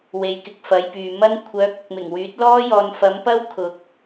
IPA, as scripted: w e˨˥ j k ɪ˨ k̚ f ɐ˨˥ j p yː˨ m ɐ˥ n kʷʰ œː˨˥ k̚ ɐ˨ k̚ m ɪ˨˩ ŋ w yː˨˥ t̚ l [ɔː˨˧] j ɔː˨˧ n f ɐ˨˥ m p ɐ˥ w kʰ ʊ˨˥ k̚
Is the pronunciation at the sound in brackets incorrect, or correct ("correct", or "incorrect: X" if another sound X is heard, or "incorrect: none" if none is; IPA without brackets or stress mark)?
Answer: incorrect: ɔː˥